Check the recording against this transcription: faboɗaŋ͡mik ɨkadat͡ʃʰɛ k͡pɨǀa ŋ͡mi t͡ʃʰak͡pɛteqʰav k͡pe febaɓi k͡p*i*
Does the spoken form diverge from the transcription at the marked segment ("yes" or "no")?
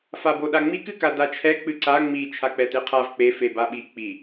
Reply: no